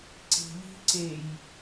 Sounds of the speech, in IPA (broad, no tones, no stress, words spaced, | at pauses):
ǀi̤ʎi̤ǀej